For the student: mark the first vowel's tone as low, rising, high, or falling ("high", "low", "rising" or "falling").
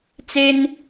high